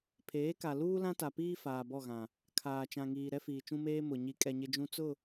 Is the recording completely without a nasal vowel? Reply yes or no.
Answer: no